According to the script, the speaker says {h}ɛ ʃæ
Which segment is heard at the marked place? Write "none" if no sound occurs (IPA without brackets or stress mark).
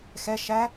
x